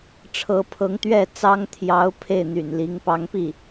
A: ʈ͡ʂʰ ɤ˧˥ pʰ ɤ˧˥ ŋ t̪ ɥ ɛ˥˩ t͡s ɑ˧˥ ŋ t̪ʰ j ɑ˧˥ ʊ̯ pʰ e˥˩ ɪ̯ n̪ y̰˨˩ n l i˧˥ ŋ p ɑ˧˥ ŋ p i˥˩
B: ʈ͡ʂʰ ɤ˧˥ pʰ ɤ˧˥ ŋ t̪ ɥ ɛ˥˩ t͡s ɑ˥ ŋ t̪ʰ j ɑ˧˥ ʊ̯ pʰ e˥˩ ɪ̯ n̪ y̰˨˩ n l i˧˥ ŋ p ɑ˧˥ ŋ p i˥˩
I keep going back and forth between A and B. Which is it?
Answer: B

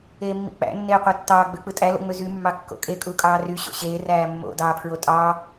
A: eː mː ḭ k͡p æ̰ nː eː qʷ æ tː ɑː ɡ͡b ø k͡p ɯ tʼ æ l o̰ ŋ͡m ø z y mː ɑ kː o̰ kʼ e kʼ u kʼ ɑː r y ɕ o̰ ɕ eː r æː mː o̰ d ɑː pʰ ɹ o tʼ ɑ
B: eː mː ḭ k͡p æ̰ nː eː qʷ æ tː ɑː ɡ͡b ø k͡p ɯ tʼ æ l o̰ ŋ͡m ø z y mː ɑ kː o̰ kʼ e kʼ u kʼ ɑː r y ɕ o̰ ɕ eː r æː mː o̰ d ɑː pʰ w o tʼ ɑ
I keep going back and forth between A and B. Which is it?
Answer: A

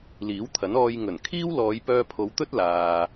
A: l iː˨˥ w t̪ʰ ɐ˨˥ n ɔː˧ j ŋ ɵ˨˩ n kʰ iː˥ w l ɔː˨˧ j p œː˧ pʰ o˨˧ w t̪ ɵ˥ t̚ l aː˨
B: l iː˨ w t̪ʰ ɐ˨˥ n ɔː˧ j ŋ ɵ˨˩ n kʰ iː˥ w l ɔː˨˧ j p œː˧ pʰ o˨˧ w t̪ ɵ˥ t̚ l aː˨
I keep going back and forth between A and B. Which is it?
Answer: A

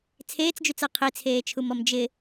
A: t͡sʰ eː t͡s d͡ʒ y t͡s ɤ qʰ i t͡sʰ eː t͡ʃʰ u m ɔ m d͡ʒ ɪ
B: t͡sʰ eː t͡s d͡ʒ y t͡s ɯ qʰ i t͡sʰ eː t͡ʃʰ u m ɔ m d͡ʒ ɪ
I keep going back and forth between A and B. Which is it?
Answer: A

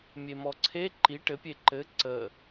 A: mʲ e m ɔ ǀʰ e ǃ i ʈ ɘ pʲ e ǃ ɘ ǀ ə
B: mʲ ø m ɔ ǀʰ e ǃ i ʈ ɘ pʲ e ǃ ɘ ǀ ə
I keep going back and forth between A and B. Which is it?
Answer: A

